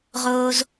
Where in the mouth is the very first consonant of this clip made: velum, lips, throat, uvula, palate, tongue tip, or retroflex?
uvula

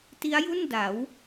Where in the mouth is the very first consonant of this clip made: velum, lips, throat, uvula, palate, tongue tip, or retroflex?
tongue tip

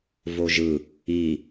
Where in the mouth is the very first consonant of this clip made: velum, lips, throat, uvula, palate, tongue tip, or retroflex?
lips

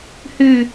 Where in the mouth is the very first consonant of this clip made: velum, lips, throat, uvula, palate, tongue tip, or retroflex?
throat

